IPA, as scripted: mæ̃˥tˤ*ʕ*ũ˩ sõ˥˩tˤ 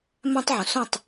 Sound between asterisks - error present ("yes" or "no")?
no